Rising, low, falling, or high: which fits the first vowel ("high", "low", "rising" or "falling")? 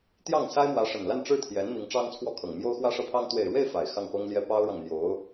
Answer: falling